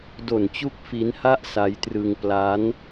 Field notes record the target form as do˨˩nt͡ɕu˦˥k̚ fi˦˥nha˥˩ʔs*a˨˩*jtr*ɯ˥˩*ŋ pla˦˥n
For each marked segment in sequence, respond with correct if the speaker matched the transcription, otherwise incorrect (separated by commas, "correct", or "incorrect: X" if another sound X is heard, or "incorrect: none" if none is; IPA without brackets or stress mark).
incorrect: a˦˥, incorrect: ɯ˧